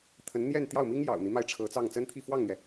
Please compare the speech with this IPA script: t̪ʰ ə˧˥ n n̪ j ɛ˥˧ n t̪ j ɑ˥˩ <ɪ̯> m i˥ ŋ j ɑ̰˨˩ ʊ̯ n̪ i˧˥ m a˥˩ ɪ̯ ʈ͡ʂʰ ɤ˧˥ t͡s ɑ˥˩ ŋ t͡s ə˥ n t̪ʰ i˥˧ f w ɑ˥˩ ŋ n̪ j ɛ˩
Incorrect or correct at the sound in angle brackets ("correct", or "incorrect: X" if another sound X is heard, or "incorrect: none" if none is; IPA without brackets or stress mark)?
incorrect: ʊ̯